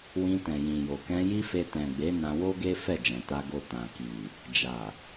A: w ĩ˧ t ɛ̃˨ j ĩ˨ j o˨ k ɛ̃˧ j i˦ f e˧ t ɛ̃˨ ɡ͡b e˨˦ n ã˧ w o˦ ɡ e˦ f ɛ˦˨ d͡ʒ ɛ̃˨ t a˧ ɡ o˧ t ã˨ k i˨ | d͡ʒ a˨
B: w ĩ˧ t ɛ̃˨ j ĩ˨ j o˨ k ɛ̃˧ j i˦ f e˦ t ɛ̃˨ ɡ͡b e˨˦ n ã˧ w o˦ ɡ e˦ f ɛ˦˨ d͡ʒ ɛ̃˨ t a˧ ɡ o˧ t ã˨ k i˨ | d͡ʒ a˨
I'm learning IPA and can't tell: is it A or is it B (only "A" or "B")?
A